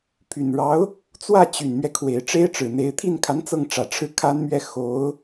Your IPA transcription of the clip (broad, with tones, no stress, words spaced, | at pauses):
pʰy˨˩nɻɑ˧˥ʊ̯ | t͡swä˥˩t͡ɕy˨˩nmɥɛ˦ kʰwe˨˩ɪ̯ʈ͡ʂe˥ɪ̯ʈ͡ʂɻ̩˨˩n̪e˧˥ɪ̯ t̪ʰi˥˩nkʰa˧˥n t͡sɤ˥˩ŋʈ͡ʂä˨˩ʈ͡ʂʰɻ̩˥˩ kʰa˥nmɥɛ˥˩ xo˧˥ʊ̯